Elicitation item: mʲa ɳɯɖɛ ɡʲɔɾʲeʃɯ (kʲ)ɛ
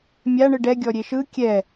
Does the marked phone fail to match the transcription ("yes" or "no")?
no